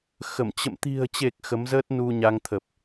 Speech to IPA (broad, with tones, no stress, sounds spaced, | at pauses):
x ə˧˩ m t͡ɕ ə̰˧˨ m t̪ i̤˨˩ ə̯ t͡ɕ e˨˩ k̚ x ə˨˦ m z əː˦˥ t̚ n u˧ ɲ a˧ ŋ t̪ʰ ə˨˩ p̚